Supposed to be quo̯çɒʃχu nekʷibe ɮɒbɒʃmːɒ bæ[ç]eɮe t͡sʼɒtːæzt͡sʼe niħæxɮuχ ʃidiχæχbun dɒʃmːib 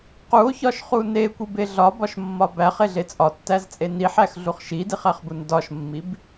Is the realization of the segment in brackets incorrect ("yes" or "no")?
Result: yes